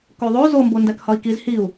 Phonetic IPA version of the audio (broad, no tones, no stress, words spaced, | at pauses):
koðˤo zombo ndækhɒi̯kiz hiu̯